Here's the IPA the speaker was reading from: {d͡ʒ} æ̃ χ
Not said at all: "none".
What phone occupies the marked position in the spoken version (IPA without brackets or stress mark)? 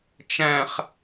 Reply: t͡ʃ